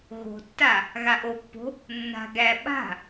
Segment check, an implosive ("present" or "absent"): present